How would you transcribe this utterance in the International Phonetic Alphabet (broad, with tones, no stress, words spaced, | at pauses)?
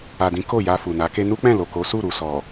a˨dĩ˨˦ ko˦˨ ja˧fu˨na˨˦ke˦ nu˦k͡pɛ̃˦˨lo˨ko˨˦ su˦˨ɾu˨sɔ˨